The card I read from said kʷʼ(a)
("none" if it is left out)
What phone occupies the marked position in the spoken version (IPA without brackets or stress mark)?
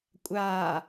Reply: aː